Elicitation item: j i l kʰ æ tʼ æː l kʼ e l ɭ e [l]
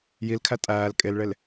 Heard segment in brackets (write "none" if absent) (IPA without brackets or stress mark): l